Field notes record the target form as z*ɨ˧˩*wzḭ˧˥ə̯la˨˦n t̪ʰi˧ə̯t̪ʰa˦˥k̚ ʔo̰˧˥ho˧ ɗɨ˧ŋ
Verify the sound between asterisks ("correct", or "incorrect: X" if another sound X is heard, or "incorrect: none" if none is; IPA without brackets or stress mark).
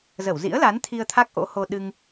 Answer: incorrect: ə˧˩